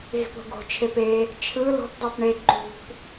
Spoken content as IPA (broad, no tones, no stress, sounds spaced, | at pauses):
ɣ i̤ p o̤ ɡ o̤ t͡ʃʰ e p e | t͡ʃʰ ɯ l o̤ p dˤ o p ɳ e ǃ ṳ p